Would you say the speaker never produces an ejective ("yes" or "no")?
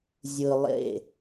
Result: yes